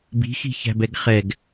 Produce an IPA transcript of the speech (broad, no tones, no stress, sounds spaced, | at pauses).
b i̤ x i̤ ç æ̤ b ɛ ɡ χ ɛ ɡ